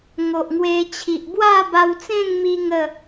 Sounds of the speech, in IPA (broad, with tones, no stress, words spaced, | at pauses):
ŋo˨ʔŋwe˧t͡ɕʰi˨ʔ bwa˥˧ba˧wt͡sẽ˥˧ŋmi˧ ŋə˥˧